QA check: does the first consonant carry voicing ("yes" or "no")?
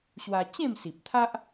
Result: no